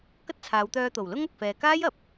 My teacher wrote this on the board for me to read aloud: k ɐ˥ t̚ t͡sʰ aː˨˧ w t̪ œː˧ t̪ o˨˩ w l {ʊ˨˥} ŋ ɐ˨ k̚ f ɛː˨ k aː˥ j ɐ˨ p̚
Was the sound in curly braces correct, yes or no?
no